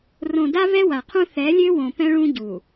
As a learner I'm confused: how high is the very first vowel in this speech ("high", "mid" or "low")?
mid